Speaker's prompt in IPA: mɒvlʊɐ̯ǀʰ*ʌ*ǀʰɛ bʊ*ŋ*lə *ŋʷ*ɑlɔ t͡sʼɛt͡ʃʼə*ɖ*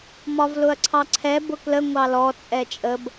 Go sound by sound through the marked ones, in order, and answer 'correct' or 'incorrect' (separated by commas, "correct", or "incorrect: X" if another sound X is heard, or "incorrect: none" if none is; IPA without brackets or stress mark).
incorrect: ɑ, incorrect: k, correct, incorrect: b